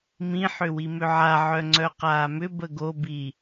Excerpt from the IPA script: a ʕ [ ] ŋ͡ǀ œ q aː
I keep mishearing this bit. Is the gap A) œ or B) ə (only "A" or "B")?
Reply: A